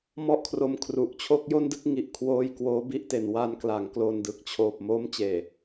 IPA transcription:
mɔ˥˩ʔkʰro˧m kʰru˨˩ʔt͡ɕʰo˥˩k̚ jo˥˩ndɯ˥˩k̚ŋi˨˩ʔ kʰwoː˧j kwoː˦˥bi˥˩ʔte˨˩n wa˧nkla˩˦ŋklo˨˩ndɯ˨˩k̚ t͡ɕʰoː˨˩p̚mo˦˥m t͡ɕeː˨˩

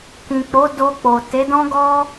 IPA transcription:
kĩ˨k͡po˨˦ do˧k͡po˨ te˨˦dɔ̃˦ ɡɔ˦

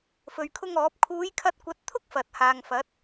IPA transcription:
fɵ˨ɥkʰʊ˥ŋɔː˨˥p̚ kʰuː˨˧jkʰɐ˧t̚kʷɐ˨˥t̚t̪ʰʊ˥k̚ fɐ˨t̚haː˨ŋfɐ˨˥t̚

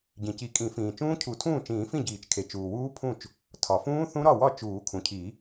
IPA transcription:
ɟĩ˩ci˨˩˦kʼĩ˨˩˦fĩː˩ t͡ʃũː˦˥cʰu˨˩˦tʰũː˥˩t͡ʃĩː˨˩˦ fĩ˥˩ɟiː˨˩˦t͡ʃkʰe˩ t͡ʃuː˩wuː˦˥pʰũ˥˩t͡ʃ | tʰɒ˩fũː˦˥ θũ˦˥ɾɒ˥˩wɒ˥˩ t͡ʃuː˨˩˦kʰũ˩cʰi˨˩˦

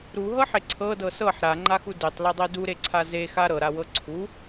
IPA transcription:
ɾuɦɤħe ǀʰɤdɤ sɤħ ɾaŋ͡ǃaxu detˤledˤe duɾeǀʰa zexa ɾɤɾawɤ ǀʰu

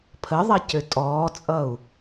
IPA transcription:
pʰəðˤɐ cøtʼɔːt͡sʼʌu̯

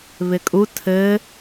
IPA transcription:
βɪkʼu tʰɘ

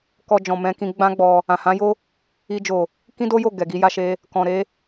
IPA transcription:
kɔ˧d͡ʒɔ̃˨mɛ̃˧kĩ˧ ɡ͡bã˦ɡ͡bɔ˧ | ã˨hã˨˦jo˦ | i˧ d͡ʒo˨ | kĩ˦do˦jo˦˨ ɡɛ˨ɡi˧ja˧ʃe˧ | kɔ̃˨ ɾe˧

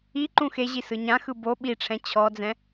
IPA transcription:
i ǃũxeʑi sɯɲãxɯ bo ɓiʈ͡ʂʰɛ̃ t͡ɕʰɔd͡zɛ̃

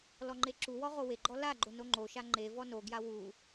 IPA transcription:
lɔŋ͡ǃeǁuwɔ ʁoweɡ͡ǃɔ laɡ͡ǃo noŋ͡ǃoʃa ŋ͡ǃevɔ noɡja wu

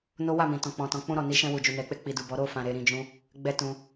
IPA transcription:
no˦wa˦˨mĩ˨ tɔ̃˨k͡pɔ̃˨tɔ̃˨ k͡pũ˧ɾɔ˨ni˨˦ ʃɛ̃˧wu˨d͡ʒu˨ nɛ˨k͡pe˧k͡pi˨ du˨bɔ˨˦ ɾo˦˨fã˨ ɾe˨˦ɾĩ˧d͡ʒũ˦ | ɡ͡bɛ˦tũ˧

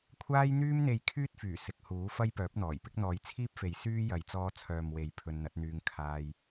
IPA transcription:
kʷʰaː˧jn̪yː˧mn̪e˨j kʰyː˥t̚fyː˨˩ sɪ˨k̚huː˨˥ fɐ˥jpœː˨˥p̚n̪ɔː˨˩jpɪ˥k̚ n̪ɔː˨˧jt͡sʰiː˥p̚fe˨j syː˥ jɐ˨˧j t͡sɔː˧t͡sʰœː˨mwe˨˧j pʰɵ˧nn̪ɐ˨˥t̚n̪yː˧ŋ kʰaː˧j

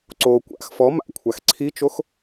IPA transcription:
ǀo kʷa̰x fɔ ma̰kʷʰax ǀʰit͡ʃox

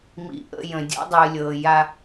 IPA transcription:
mḭ˨ʔə̰˦˨ jə̃˨ dʲɔ̰˦dˤɨː˨lʲɤː˨ ja˦

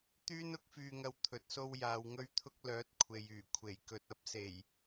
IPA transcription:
t̪yː˥nʊ˥k̚fyː˧ŋɐ˧w t̪ʰɵ˨t̚so˧w jaː˨wŋɵ˧ɥt̪ʰʊ˧k̚ lœː˨˥t̚kʷʰe˨jyː˨˩ kʷʰe˨˩jkɵ˨t̚ɐ˨˥p̚ se˨˩j

